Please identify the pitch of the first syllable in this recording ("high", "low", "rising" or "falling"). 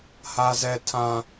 high